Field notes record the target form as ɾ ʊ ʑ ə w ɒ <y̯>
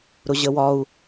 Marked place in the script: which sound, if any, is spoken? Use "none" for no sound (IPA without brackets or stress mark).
u̯